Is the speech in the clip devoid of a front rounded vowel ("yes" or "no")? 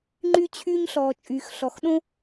no